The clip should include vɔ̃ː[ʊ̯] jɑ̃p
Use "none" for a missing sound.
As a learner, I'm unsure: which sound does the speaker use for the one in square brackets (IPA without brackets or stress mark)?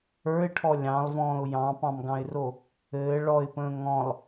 ʊ̯